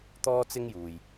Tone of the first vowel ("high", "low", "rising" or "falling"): high